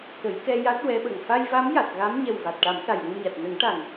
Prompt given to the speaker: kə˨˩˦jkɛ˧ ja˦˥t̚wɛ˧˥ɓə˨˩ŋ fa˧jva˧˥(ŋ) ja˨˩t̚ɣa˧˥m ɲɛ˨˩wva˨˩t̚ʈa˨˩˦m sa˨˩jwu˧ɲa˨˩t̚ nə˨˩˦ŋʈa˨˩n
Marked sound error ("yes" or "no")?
yes